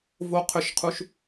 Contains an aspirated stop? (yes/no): yes